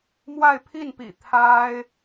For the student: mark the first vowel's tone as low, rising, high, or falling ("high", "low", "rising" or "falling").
falling